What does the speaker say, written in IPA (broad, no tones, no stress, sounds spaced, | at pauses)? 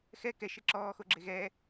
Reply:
x ɛ k ɛ ʃ e ǁ ɔː x o ɡ͡ǁ e ɣ ɛ